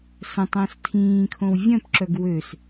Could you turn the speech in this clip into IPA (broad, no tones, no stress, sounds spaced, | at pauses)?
s ə̃ tˤ ə̃ː s tʰ ĩː kʰ õ w vʲ œ̃ p ǁ œ ɡ w ø s